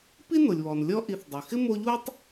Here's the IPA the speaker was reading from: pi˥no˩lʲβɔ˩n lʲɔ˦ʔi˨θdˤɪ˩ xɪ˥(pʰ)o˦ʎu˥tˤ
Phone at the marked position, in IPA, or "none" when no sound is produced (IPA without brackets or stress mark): m